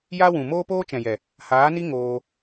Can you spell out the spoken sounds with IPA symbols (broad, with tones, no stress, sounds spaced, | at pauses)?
j a˦ w ũ˨ m oː˦ p oː˦ t͡ʃ ɛ̃˨ j ɛ˨ | h aː˨˦ n i˦ ŋ oː˧